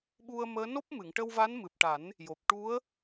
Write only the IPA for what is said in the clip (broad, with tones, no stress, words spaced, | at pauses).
ɓu˧ə̯məː˧˥ no˦˥p̚mɨ˨˩˨ŋʈə˧wva˧˥n mɨ˨˩p̚ʈa˨˩˦n | jo˨˩p̚ ʈu˧˥ə̯